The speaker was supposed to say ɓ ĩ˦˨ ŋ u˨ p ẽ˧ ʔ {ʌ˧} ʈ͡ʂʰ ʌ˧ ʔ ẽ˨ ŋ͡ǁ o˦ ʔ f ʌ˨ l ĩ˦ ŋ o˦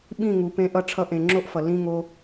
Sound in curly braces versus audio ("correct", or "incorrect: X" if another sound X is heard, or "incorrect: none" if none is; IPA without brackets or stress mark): correct